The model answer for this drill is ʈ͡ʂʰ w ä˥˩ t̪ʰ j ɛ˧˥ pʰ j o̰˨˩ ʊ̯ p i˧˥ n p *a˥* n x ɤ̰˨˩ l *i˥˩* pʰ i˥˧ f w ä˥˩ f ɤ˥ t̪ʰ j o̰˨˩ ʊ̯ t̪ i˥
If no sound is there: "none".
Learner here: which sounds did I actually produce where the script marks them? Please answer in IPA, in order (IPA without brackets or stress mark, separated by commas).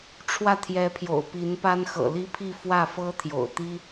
a˥, i˥